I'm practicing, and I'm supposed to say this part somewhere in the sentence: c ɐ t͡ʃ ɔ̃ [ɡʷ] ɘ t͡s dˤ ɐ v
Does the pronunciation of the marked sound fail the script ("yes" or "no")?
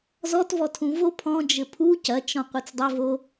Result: yes